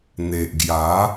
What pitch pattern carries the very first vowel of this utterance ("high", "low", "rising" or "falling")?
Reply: low